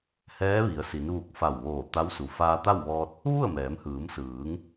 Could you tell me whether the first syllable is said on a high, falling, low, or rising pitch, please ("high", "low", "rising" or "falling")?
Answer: rising